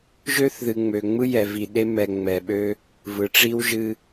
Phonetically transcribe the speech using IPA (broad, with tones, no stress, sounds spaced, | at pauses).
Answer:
ʒ ø˦ θ ð ɨ˨ ŋ͡m ø˨ ŋ͡m ɯ˦ j ɛ˨ v i˨ ɗ e˦ m ɛ˨ ŋ͡m ɛ˨ ɓ ø˦ | v ɯ˨ ʈ͡ʂ i˦ w ʒ ɨ˦